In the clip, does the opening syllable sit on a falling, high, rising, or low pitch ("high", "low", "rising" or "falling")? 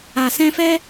low